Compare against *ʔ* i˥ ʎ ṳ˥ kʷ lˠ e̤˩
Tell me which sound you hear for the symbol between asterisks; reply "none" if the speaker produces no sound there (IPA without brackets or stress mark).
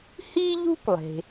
h